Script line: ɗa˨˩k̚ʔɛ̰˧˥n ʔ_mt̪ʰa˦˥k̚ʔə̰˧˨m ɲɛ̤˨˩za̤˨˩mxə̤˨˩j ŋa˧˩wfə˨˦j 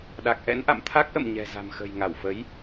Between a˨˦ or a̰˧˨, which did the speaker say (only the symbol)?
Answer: a̰˧˨